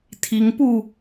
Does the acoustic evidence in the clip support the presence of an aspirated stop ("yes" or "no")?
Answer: yes